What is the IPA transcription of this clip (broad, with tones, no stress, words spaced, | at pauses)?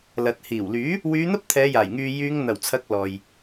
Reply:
lɐ˨t̚ hiː˨˩wlyː˨˥ | wyː˨˧ n̪ɐ˥p̚t̪ʰɛː˨˧jaː˨˩jŋyː˨ jyː˨˧ŋn̪ɐ˨˩wt͡sʰɐ˨˥k̚ lɔː˨j